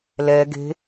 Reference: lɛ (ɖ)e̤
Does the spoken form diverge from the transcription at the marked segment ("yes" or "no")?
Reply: yes